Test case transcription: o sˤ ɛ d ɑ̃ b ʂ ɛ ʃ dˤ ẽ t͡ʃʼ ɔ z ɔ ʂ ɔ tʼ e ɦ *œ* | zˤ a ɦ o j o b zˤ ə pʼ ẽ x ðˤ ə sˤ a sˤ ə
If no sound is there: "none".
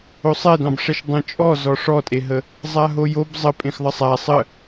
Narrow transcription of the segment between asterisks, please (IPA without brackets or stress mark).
ə